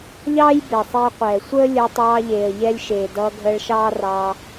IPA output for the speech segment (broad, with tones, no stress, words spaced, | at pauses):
ʎɑː˦j be˨sˤɛ˧ə̯qʷɛː˨ sʷəː˦ lʲəː˧tˤɑː˧ʎeː˨ə̯ ʎɛ˧lʲ ʃeː˨ dʌː˧ɡʱəː˧ɭʃɑː˦rɑ˧